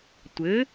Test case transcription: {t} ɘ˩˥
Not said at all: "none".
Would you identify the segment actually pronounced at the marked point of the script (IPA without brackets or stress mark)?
tʷ